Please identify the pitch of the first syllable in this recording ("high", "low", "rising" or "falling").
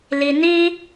low